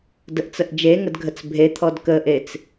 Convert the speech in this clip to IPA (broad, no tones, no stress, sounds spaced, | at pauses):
d ə ʔ t͡s ə ʔ d͡ʒ e ŋ ə d ɡʱ ə t͡s bʱ e t̪ʰ ɔ d k ə ʔ e t͡s